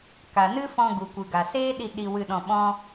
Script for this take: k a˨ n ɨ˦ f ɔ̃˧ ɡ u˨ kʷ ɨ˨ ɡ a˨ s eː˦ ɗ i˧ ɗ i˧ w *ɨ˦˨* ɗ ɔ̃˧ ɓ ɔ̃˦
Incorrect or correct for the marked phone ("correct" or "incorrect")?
incorrect